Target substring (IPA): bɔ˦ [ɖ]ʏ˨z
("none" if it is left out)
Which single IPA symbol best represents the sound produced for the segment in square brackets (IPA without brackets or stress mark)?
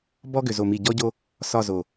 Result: ɡ